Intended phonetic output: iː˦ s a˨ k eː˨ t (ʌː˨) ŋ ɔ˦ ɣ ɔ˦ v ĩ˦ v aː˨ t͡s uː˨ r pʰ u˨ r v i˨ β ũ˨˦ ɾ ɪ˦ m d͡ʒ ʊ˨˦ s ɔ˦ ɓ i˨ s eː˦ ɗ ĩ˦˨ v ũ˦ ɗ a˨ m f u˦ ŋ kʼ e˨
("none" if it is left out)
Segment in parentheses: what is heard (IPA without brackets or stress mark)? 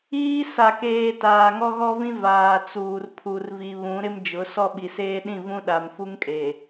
aː˨